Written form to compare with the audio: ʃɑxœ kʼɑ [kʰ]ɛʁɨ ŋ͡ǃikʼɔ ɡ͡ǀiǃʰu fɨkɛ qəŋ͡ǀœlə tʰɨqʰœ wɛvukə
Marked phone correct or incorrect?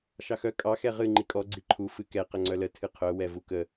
incorrect